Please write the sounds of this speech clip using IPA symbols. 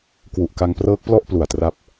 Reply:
k w u˨˩ ʔ k a˧ ŋ p r ɤː˦˥ k̚ p l ɔ˥˩ ʔ p l u˨˩ a̯ t r a˦˥ p̚

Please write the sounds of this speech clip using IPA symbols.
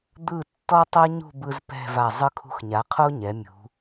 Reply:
d̪ ɯ˧˩ tː ɔ˧ tˤ ɤ˥ ɲ ṳ˥˧ b ɯ˧ z p ɛ̤˥˧ v a˧˩ zˤ ɯ˥ kʰ ṳ˧ x ɲ a˩˧ qʰ o˥ ɲ ɛ˩˧ mʲ ṳ˩˧

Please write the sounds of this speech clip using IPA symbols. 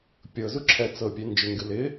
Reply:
pʲ ɤ z u ǁʰ ɛ t͡s ɤ pʲ e n d͡ʒ ɪ ŋ ɡ ɨ l ɪ

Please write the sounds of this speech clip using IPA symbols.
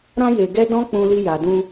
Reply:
ɾ ã˧ j e˨ ɡ ɛ˧ d ɔ̃˦ k͡p ũ˧ l i˧ j a˨ d ũ˧

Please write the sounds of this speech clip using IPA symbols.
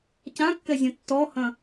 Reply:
c ã kː ɛ zʲ ɐ̃ tː ɔ h ɐ̃

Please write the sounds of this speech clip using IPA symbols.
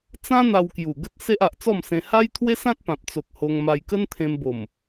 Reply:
t͡s ã˦ n̪ a˧ w k j u˨˩ ɡ ə˦ t̚ s e˦ ʔ a˨ ʔ t͡s ɔ˥˧ m s ẽ˧ h a˦ j t̪ʰ w e˦ s ã˦ t̚ p ã˨ p̚ t͡s o˨ k̚ h o˧ ŋ m a˧ j k ə˦ n t̪ʰ ẽ˧ m b o˨˩ m

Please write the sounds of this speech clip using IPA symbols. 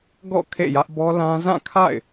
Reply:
ɡ ɔ̰˦˨ kʰ ḛ˦˨ j ä˦ ʔ b ɔ˦ l ã˦ z ã˦˨ kʰ a̰˦˨ ɪ̯

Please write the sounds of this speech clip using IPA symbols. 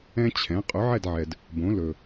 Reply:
ɛ̃˥ t͡ɕʰ ɛ̃˩˥ qʼ ɵ˩˥ ʕ ɛ˥˩ d ʕ ɛ˩ d | b õ˩˥ l ɵ˩

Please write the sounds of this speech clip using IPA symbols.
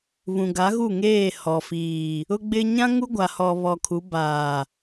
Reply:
β ũ˨ ɡ a˨˦ ɣ u˦˨ ŋ eː˦˨ h ɔ˨ f iː˨ | ʊ˦ ɡ͡b ɪ˦ ɲ ã˦ ŋ u˦ ɡʷ a˨ h ɔ˨ β ɔ˨ kʰ u˨˦ b aː˨

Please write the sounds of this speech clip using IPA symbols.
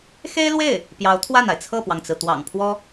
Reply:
x e˥ ɪ̯ l w e˥˩ ɪ̯ | p j ɑ˧˥ ʊ̯ t̪ʰ w a˥˩ n a˩ ɪ̯ t͡sʰ ɤ˥˩ p w ɑ˩ ŋ t͡s ɹ̩˩ t̪ w ɑ̰˨˩ ŋ pʰ w ɔ˥

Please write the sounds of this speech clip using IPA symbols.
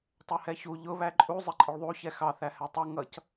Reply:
tˤ ɛ h ɛ ç u ʎ ʊ β æ ǃʼ u zˤ ɪ ǃʼ ɪ ɭ ðˤ u ç ɛ x ɑ θ æ h ɛ tˤ ʌ ŋ ʌ c

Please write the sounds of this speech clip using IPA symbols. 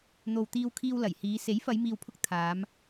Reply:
n̪ o˨ w t̪ iː˧ w kʰ iː˧ w l ɐ˨˩ j h iː˨˧ s e˨˥ j f ɐ˨˧ j m iː˨ w pʰ ʊ˧ k̚ t̪ʰ aː˨˧ m

